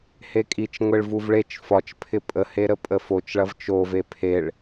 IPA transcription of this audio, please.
hekʼit͡ʃŋʷeɭ vuvɭet͡ʃ fɒt͡ʃpʰɪ pʼəhe ɾəpʼəfot͡ʃɭɐv t͡ʃove pʰeɭ

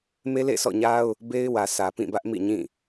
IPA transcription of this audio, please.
me˦lḛ˦˨sʰɔ̰˦˨ɲa˦ʊ̯ | be˦ɪ̯wä˨ sʰä˨pĩ˦˨bä˦ʔmḭ˦˨ ɲĩ˦˨

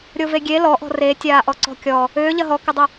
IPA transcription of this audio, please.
ɾʲoveɡʲe lɔʔɔ̤ re tʲaːʔɔǀɔ̤kʲɔ | ʏː ʎɐɦɔkʏdˤʏ

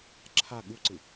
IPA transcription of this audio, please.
ǁʰa ɠuǀɯ

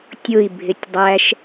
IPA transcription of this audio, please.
tʲʊi̯ bʱɪtʲdˤæʃ

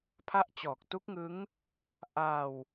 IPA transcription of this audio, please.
pʰa˦˥ʔt͡ɕɔː˨˩k̚tu˦˥k̚ŋɯ˦˥ŋ | ʔa˧w

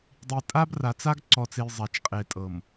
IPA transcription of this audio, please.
dˤi˨tʼa˦bra˨t͡sa˦ɡ ǀɔ˨t͡se˨j zˤa˨t͡ʃqʼe˨tʼɤ˨m

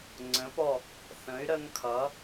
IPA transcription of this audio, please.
ŋ͡ǀə̃˩˥pɔ˥˩ | θə̃˩˥y̯ ɾə˦ŋkʰʌ˩˥

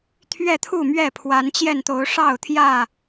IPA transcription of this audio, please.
t̪ʰɥɛ˥˨t̪ʰu˥˨mɥɛ˥˨ pʰwa˨˦nt͡ɕjɛ˥˨nt̪o˨˦ʊ̯ ʂɑ˥˨ʊ̯t̪ʰjä˥˨

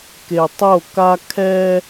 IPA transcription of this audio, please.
ke˨tˤo˦˨ka˦ kʰɛ˦

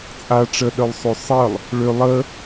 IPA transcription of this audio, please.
t͡sʼa ʈ͡ʂəɗœlˠsˤø sˤəlˠ | ɭø lˠə

